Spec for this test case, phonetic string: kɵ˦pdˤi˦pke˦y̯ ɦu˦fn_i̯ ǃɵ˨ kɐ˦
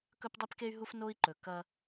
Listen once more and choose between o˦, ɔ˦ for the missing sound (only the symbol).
o˦